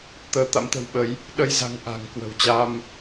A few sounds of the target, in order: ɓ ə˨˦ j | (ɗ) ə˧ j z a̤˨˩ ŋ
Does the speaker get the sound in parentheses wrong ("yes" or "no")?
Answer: no